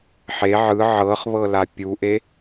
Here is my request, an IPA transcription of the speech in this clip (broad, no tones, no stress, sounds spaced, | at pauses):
ħ e ʕ ɯ ʕ ɤ χ β ɤ l a pʲ u ʔ e